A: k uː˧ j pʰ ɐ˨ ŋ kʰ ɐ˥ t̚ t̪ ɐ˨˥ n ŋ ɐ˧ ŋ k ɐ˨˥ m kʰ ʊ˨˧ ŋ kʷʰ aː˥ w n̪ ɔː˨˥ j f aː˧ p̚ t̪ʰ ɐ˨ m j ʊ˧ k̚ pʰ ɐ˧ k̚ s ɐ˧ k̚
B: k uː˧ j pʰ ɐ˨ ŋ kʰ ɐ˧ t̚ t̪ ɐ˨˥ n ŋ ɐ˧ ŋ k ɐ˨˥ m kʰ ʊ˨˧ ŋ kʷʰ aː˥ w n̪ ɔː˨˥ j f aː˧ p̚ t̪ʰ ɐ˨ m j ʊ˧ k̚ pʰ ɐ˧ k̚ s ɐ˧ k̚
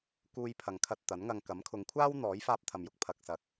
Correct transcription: B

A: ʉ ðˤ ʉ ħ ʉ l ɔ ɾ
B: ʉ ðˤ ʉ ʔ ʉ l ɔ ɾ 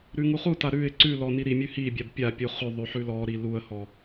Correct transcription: A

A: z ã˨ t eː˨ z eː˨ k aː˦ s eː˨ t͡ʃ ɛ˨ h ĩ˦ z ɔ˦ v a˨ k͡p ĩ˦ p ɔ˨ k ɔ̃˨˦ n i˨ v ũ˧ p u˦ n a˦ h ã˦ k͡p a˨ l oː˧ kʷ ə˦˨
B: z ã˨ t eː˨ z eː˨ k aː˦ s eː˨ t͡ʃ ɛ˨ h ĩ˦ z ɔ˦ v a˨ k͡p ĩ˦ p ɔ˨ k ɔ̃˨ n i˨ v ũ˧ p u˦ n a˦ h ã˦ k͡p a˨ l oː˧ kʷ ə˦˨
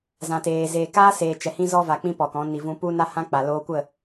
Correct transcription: A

